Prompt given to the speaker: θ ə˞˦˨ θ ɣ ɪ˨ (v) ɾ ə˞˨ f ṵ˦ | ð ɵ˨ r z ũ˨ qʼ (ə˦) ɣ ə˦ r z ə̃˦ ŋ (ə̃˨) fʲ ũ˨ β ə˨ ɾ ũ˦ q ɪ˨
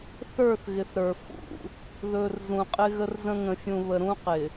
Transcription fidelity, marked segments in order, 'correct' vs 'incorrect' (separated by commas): incorrect, incorrect, correct